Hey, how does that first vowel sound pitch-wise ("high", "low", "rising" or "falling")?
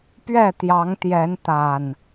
falling